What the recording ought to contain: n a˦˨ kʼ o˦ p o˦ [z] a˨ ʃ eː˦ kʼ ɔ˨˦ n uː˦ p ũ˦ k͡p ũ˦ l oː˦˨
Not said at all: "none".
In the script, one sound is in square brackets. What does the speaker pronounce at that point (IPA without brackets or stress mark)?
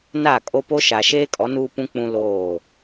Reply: ʃ